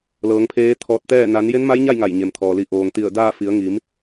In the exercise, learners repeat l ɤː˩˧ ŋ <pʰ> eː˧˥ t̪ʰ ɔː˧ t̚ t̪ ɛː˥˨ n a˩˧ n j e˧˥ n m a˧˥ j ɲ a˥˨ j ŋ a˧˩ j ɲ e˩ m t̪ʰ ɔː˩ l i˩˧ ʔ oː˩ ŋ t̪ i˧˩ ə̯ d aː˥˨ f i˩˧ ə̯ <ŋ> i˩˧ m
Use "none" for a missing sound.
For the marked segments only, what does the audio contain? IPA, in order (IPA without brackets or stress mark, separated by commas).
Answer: pʰ, ŋ